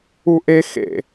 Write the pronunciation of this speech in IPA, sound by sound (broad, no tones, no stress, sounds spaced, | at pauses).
u ʔ e x ḛ